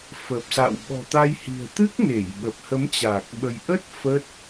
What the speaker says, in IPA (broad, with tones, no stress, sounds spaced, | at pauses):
f ə˨˩ p̚ s a̰˧˨ w ɓ ɔ̤˨˩ t̪ a˧ j h i̤˨˩ ə̯ t̪ ɨ˦˥ k̚ n e˧˩ j ɓ ə˨˩ p̚ h ə˨˦ m t͡ɕ a˨˩ k̚ ɓ ə˧ j ʔ ə˦˥ t̚ f ə˦˥ t̚